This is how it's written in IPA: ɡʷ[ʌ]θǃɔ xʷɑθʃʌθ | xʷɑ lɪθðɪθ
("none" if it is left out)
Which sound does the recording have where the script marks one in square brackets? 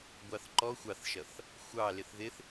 ɑ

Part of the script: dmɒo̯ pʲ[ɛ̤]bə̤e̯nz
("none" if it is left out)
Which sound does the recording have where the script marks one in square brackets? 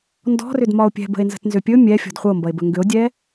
ɛ̤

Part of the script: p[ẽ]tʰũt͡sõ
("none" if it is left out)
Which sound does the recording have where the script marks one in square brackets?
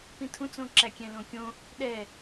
ĩ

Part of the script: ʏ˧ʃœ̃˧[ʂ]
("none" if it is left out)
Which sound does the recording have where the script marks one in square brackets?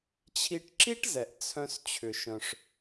ʂ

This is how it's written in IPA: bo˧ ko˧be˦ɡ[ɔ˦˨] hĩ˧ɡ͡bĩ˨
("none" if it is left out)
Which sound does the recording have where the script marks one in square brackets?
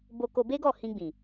ɔ˦˨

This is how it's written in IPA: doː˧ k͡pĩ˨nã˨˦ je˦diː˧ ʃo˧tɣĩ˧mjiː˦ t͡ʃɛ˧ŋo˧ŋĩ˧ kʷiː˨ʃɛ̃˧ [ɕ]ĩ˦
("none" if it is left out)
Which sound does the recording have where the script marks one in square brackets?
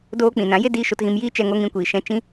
t͡ʃ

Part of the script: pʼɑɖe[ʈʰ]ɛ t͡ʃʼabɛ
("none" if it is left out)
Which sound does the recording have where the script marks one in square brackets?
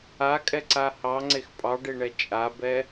ɳ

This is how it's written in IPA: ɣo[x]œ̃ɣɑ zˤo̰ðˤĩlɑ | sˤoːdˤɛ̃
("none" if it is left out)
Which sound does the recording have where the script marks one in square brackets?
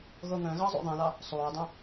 ŋ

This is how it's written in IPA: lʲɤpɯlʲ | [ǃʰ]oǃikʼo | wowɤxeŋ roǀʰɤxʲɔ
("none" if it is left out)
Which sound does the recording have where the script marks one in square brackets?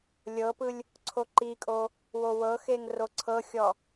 ǀʰ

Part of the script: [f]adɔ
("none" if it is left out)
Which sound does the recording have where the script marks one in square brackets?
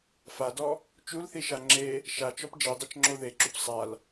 f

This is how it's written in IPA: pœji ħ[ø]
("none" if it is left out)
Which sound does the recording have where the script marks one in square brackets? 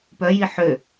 ø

